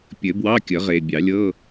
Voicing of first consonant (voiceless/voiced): voiceless